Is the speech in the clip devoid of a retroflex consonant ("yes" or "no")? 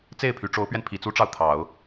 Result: no